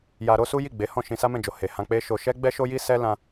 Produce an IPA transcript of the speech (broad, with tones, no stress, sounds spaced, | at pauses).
j a˧ ɾ o˦ s u˦ j i˦˨ ɡ͡b e˨˦ h ɔ̃˦˨ ʃ ĩ˧ s a˦ m ɛ̃˦˨ d͡ʒ o˨ h e˨ h ã˧ k͡p e˦ ʃ o˧ ʃ ɛ˦ ɡ͡b ɛ˦ ʃ o˦ j i˦ s ɛ˦ l ã˧